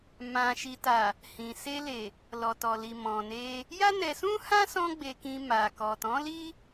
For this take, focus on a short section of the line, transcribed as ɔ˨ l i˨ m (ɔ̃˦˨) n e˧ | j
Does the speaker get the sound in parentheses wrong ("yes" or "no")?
yes